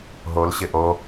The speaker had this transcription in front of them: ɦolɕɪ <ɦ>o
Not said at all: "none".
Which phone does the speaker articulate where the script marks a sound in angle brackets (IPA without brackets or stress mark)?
ʔ